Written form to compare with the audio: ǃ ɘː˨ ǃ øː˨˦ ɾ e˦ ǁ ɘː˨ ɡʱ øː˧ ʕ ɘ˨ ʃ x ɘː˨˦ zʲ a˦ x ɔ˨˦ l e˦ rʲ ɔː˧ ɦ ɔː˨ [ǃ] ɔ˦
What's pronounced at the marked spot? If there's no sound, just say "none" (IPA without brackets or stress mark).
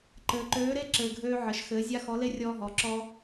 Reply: ǁ